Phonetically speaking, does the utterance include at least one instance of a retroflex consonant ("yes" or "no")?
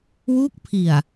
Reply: no